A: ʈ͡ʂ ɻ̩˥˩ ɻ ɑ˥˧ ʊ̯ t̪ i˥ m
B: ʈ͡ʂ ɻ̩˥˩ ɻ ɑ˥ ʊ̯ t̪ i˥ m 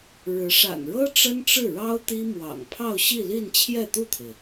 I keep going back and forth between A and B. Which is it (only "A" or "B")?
B